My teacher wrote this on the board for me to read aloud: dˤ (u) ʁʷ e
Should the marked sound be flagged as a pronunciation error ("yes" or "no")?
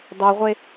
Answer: yes